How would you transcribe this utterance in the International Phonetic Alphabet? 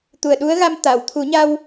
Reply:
t̪u˨˩ə̯ɗu˧˥ə̯ɣa˧m t̪a˨˩˨wt̪ʰu˨˩˦ɲa˧w

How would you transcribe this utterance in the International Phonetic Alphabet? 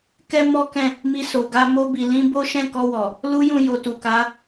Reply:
kɛ˦mɔ˦kɛ̃˦˨ | mi˧so˨ ɡa˧ mo˧bi˨ lĩ˧ bo˦ʃɛ̃˦˨kɔ˧wɔ˨ | lu˦jũ˦˨ jo˨ tu˨ka˨˦

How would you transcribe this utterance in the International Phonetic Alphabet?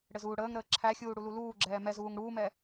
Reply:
ɽɘzuːɽəːŋɾəː ǁʰæxʲuː ɽululuːɡ͡ǁɛː mɛzuːŋ ɽuːmɛ

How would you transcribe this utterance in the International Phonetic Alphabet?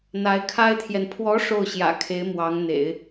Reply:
n̪a˧˥ɪ̯kʰa˥ɪ̯t̪ʰjɛ˨n pʰwɔ˧˥ ʂo˥˩ʊ̯ɕjä̰˨˩kʰe˧˥ɪ̯ mwɑ˧˥ŋn̪ḛ˨˩˦ɪ̯

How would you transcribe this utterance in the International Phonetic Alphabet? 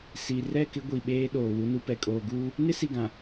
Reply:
si˨ rɛ˦˨kɪ˦ ɡʷi˨ɓeː˦ ɗoː˨wu˦nu˦pɛ˨ kʼoː˨ɡuː˦ | nɪ˦si˨ɡã˨

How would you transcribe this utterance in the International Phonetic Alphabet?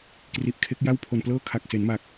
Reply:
kri˨˩ʔkʰe˦˥k̚ja˥˩w pʰo˨˩nplɤː˥˩ kʰa˨˩k̚se˩˦nma˨˩k̚

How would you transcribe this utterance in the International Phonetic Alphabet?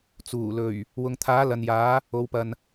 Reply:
t͡suː˨˩lɵ˨˩ɥ | wʊ˨ŋt̪ʰaː˨˥ lɐ˨njaː˨˥ | o˨˧wpɐ˨n

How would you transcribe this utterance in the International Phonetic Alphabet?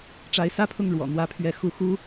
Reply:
ʈ͡ʂa˧˥ɪ̯sä˥pʰʊ˥˩ŋ ɻwɔ̰˨˩n̪wä˧˥pʰɥɛ˧˥ xu˧˥ xu˥

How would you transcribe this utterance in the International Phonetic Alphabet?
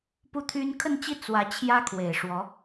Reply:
pu˥˩t̪ʰy˥n kʰə˥˧nt͡ɕi˥˩ t͡swä˧˥ t͡ɕʰjä˥ kʰwe˨˩ɪ̯ʂwɔ˧˥

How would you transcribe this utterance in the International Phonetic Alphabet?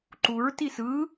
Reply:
ǃuɹ tisɯ

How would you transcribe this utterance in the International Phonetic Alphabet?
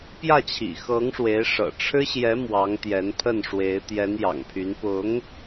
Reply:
pjä˥˩t͡ɕʰḭ˨˩xɤ˧˥ŋʂwe˧˥ɪ̯ ʂɤ̰˨˩ʈ͡ʂʰɻ̩˥ɕjɛ˧˥ mwɑ˧˥ŋ t̪jɛ˧˥npʰə˥˩nʂwe˧˥ɪ̯ t̪jɛ˧˥njɑ̰˨˩ŋpʰy˧˥n pʊ˧˥ŋ

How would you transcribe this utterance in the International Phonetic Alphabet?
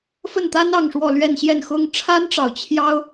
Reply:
fə˥˩nt̪a˥n ɑ˥˧ŋʂwɔ˥˧lɥɛ˥˧n ɕjɛ˥˩n xʊ˥ŋ ʈ͡ʂʰa˥nʈ͡ʂɑ˨ʊ̯ t͡ɕʰjɑ˥ʊ̯

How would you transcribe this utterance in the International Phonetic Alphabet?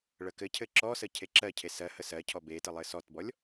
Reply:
ɭəkɘcʰɘ ǁɔsə cʰeǁɜcʰe sɜ həsɜcʰɔ betə lˠɘsɔtbɔlʲ

